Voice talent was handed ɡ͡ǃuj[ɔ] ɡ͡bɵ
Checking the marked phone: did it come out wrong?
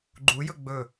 yes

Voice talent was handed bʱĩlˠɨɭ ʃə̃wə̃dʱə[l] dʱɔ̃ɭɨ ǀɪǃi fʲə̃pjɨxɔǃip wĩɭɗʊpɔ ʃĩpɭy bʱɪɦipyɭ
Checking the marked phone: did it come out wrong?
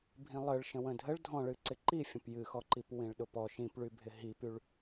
yes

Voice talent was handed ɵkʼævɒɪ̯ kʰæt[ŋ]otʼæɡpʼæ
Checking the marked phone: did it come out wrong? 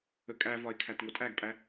no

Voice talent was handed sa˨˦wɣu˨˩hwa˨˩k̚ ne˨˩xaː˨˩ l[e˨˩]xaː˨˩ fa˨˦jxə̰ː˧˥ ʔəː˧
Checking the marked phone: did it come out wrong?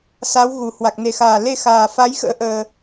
yes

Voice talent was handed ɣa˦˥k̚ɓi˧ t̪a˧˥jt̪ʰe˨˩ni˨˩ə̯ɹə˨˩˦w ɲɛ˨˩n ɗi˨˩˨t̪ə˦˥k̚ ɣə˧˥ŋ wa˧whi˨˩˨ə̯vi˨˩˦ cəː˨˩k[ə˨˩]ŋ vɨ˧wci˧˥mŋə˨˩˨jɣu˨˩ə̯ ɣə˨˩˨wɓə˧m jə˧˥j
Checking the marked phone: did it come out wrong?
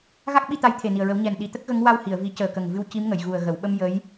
no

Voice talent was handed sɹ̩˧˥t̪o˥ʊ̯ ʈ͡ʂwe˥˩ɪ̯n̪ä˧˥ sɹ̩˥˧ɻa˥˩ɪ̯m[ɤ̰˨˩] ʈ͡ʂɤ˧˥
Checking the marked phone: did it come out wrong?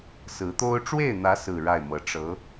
yes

